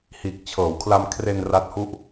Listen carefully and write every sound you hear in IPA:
h iː˨˩ k̚ t͡ɕʰ ɤː˩˦ w kʰ l a˧ m kʰ r e˧ n r a˦˥ t̚ h u˥˩ ʔ

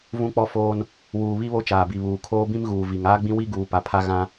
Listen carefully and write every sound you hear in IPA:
v ũ˦ k͡p ɔ˦ f oː˦ n | w uː˨ β i˦ β o˦ t͡ʃ aː˨ b i˨ β uː˨ kʰ oː˦ b ĩ˦ m ɣ uː˨ v i˨ ŋ aː˦ ɡ͡b ĩ˦ w i˦ ɡ uː˨ p a˨ pʰ a˦ ɣ ã˦

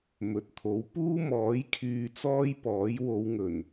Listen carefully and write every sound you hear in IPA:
m ɵ˨ t̚ t̪ʰ o˨˥ w p uː˥ m ɔː˨˥ j kʰ yː˧ t͡s ɔː˥ j p ɔː˨˥ j w o˨˧ w ŋ ɵ˨˩ n

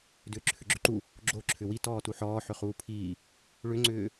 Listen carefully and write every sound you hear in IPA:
d ʏː ǁʰ ʏ ɡ͡ǁ ʏ ǃ u | ɡ͡ǁ o ǁʰ ʏ w i t ɔː t u ħ ɔː ħ ʏ χ uː pʰ iː | ɭ ʏ ŋ͡ǀ ʏː

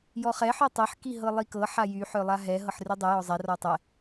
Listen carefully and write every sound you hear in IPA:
j ɔ χ ɛ ħ œ tˤ ɛ ħ k i ɦ ɤ lˠ i k ɤ ħ a j y ħ œ lˠ a ɦ ɛ ɦ ɤ ħ r y dˤ y j ɔ zˤ ɛ r ɔ tˤ ɛ

